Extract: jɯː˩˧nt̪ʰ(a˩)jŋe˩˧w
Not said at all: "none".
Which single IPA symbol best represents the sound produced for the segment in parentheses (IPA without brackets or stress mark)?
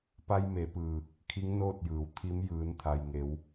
a˩